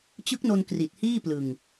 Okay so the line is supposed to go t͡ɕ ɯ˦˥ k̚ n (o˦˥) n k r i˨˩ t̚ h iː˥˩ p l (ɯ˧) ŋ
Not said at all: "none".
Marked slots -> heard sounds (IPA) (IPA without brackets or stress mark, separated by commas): o˧, ɯ˧